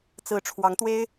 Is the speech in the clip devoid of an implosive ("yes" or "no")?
yes